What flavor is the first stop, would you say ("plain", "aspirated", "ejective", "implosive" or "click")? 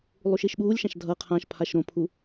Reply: implosive